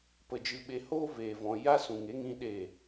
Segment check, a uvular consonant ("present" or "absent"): absent